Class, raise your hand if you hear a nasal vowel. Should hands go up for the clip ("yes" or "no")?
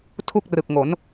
no